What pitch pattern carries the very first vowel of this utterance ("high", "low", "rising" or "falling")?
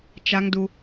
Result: high